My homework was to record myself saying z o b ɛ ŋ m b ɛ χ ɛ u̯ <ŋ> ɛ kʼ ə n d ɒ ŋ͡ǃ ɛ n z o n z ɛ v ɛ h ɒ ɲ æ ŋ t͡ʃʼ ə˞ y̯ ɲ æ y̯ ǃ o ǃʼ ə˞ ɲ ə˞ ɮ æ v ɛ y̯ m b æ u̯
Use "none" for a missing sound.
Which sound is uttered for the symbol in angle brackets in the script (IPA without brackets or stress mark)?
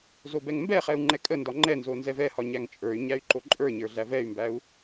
ŋ͡ǃ